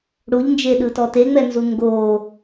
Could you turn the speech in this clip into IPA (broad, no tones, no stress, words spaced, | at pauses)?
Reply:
ɽuʎnd͡ʒeɗɯtɔ teŋ͡mɛnzu ŋɡo